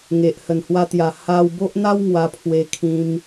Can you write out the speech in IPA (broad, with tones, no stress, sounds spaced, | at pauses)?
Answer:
ŋ e˨ ʔ h ə˨˩ n h w a˧ t̪ j a˨˩ h a˧ w b o˦ ʔ n̪ a˦ w ŋ w a˧ pʰ w e˧ kʰ ĩ˧ m